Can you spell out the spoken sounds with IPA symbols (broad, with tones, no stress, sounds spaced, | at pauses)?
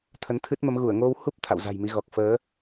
t̪ʰ ə˨˦ n t̪ʰ ɨ˦˥ t̚ m ə˨˦ m ɣ u˧˩ ə̯ ŋ o˧ w h u˦˥ p̚ t̪ʰ a̰˧˨ w z a̤˨˩ j m i˨˦ ɣ ɔ˨˩ k̚ f əː˨˦